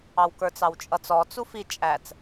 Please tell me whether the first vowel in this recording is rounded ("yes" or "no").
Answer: no